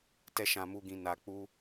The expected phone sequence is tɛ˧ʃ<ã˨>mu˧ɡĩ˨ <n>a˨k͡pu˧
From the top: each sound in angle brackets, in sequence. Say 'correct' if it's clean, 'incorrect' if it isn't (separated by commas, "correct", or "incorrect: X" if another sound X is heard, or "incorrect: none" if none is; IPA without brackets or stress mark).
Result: correct, correct